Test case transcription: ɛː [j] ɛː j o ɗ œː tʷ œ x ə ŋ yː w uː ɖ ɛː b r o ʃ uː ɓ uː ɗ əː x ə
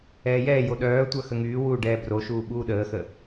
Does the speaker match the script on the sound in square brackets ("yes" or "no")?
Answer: yes